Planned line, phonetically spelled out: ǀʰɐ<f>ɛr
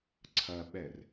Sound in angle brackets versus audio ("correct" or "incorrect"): incorrect